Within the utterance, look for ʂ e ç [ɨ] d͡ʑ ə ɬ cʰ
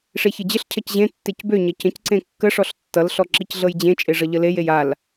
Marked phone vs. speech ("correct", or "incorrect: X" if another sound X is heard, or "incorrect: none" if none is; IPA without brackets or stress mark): correct